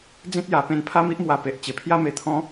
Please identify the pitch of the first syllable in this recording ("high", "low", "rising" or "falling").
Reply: high